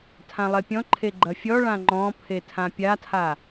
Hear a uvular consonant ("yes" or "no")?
no